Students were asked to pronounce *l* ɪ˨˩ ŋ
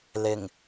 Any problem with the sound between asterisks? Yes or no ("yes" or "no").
no